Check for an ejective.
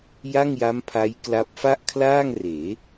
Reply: absent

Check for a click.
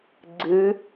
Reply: present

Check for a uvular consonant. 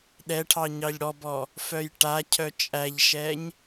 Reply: absent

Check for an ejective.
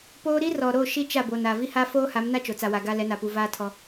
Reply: absent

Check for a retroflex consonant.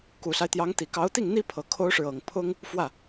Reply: present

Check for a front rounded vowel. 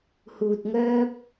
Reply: present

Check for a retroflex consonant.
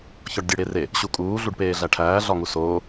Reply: present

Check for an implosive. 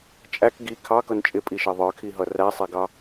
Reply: absent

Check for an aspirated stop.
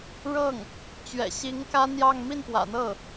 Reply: absent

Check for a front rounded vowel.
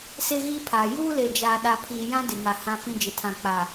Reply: absent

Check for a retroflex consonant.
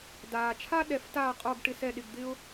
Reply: present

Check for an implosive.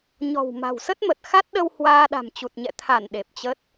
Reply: present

